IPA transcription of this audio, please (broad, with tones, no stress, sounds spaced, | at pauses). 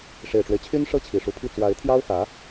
ʂ e˨˩ ɪ̯ ʈ͡ʂ w e˦ ɪ̯ t͡ɕʰ y˥ n ʂ ɤ˥˩ t͡ɕʰ i˨˩ ʂ u˧˥ pʰ i˥˩ t͡s w a˧˥ ɪ̯ t̪ʰ j ɑ˥ ʊ̯ x ä˧˥